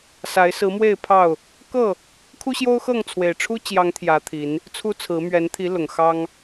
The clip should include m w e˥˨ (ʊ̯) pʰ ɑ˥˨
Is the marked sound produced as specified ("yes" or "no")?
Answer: no